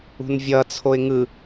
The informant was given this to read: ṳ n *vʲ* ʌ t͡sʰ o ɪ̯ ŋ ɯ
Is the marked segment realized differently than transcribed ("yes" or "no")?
no